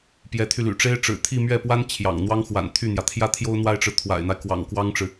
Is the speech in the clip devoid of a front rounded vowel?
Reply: no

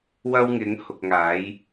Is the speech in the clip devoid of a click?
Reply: yes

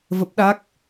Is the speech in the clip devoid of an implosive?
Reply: no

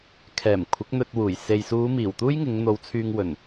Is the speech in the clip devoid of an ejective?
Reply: yes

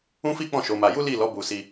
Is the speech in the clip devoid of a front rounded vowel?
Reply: yes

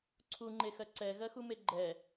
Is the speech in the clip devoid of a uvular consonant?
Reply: yes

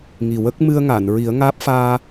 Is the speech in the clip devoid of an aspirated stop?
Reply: yes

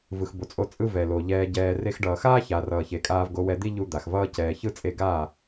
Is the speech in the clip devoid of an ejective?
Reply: no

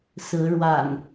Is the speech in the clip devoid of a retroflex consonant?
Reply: no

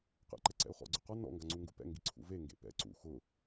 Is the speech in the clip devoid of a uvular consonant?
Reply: no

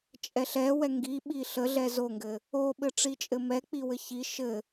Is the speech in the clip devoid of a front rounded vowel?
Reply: yes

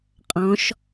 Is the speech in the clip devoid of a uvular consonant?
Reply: no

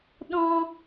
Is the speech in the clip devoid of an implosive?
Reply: no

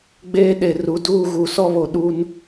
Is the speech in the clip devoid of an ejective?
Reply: yes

